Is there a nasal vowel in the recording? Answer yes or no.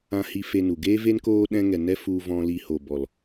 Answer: yes